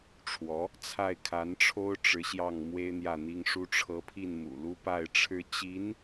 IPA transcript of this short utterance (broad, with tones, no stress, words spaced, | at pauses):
ʈ͡ʂʰwɔ˧˥ | t͡sʰa˥˩ɪ̯kʰa˧˥nʈ͡ʂʰo˥ʊ̯ ʈ͡ʂɻ̩˧˥ɕjɑ˥˩ŋ mwe˥ɪ̯n̪jä˥˩n̪i˥ŋʂu˥ ʈ͡ʂʰɤ˧˥pʰi˥˩nmṵ˨˩lu˥ pa˥˩ɪ̯ʈ͡ʂʰɻ̩˥ t͡ɕi˧˥n